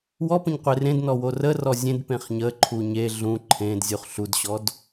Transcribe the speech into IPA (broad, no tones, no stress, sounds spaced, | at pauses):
w ɔ p ə̃ ɲ qʷ e r ẽ d n ɔ w o r ə r ɔ zʲ ẽ d p ẽ χ ɲ ə ǃʰ u ɲ e ɮ ũ ǃʰ ẽ d zʲ u χ ɬ u d ɕ ɔ d